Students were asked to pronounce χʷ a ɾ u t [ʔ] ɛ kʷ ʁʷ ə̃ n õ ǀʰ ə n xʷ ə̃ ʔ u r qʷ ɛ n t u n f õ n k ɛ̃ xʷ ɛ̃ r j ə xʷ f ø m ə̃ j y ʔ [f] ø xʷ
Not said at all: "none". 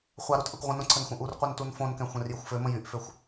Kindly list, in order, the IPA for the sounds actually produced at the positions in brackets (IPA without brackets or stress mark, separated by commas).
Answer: ʔ, f